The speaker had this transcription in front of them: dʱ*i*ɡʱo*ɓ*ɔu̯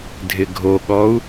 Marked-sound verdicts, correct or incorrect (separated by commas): incorrect, incorrect